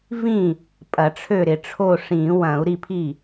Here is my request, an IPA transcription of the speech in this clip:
v ĩ˥˩ | pʼ ɐ˨˩˦ ʈ͡ʂʰ ø˥˩ ɾ ɪ˨˩˦ ʈ͡ʂʰ o˥˩ ʂ ĩː˨˩˦ w ɐ̃ː˨˩˦ u̯ ɾ i˥˩ pʰ i˥˩

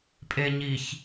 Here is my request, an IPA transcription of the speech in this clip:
pʼ e ɲ i ç

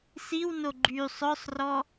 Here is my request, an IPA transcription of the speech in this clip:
s i w n o ɡ͡ǃ y sˤ œ sˤ r ɔ

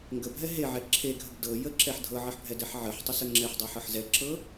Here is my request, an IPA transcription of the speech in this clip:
ŋ ɡ ə bʱ ɛ ɦ e ʕ ɛ ǁʰ e ɡʱ ə ɡ d ɤ j ə ǁ ɛ ħ dʱ ɤ ʕ ə ħ bʱ ɛ d ɛ ħ ʕ ə ħ tˤ ə s ə ŋ͡ǁ ɛ ħ dˤ ɛ ħ ɤ ħ z ɛ ǁ ɤ

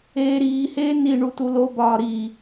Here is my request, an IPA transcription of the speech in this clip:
eː ɾ iː h eː n i ɳ u t u l o b ɒː ɾ i

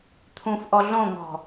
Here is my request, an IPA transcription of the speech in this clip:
t̪ʰ ũ f ʔ ɔ ɮ õ ŋ ɔ̤

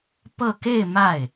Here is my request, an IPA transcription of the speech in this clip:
p ɤ˥˧ k e˥˧ ɪ̯ m a˥˩ ɪ̯

